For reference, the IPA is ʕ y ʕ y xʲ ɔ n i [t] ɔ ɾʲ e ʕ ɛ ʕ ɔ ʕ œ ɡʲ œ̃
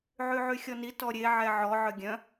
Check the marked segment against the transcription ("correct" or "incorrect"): correct